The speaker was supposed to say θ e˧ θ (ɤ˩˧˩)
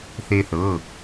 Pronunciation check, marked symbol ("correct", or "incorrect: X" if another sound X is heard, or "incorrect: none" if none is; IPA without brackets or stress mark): correct